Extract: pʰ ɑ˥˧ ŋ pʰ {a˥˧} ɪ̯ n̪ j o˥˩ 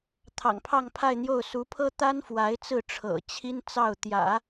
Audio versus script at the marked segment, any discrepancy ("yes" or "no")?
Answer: no